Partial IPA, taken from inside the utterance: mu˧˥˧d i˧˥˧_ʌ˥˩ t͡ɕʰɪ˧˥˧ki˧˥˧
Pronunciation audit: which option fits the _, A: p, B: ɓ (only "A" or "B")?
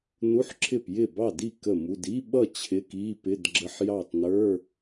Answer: B